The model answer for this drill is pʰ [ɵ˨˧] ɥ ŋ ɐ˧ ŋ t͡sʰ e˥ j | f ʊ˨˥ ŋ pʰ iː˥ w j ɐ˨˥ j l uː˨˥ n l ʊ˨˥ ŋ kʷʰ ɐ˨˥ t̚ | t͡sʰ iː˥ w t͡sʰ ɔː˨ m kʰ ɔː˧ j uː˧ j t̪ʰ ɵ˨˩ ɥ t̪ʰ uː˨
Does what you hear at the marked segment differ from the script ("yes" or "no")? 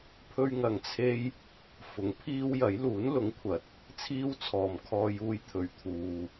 yes